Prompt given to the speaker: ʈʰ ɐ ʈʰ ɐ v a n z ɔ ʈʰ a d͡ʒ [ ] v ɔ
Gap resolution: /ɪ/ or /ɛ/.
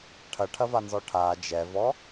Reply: ɛ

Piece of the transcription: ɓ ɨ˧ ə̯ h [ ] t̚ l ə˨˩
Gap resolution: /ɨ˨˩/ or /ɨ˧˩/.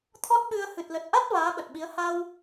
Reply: ɨ˨˩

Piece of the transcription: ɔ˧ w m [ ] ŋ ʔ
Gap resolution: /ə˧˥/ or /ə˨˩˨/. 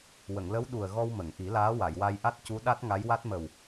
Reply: ə˨˩˨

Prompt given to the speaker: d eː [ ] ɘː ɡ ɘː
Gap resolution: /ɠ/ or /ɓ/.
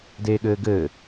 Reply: ɠ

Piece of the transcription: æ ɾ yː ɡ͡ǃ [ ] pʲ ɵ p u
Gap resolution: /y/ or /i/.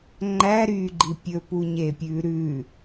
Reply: i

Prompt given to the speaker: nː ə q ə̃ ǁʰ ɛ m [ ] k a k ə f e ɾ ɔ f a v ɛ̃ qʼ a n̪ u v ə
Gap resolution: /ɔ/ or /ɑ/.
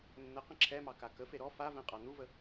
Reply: ɑ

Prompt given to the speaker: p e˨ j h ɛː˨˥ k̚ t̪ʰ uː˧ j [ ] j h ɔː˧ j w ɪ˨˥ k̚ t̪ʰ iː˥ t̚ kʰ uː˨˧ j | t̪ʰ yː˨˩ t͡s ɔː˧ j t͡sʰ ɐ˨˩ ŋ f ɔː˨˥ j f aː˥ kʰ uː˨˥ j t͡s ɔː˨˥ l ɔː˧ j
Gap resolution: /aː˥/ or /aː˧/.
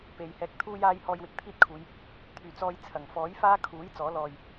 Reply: aː˧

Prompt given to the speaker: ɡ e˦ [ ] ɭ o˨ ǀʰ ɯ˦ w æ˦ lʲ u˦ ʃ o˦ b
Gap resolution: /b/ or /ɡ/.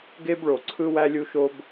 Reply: b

